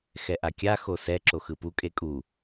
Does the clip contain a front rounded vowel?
no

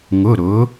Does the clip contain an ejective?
no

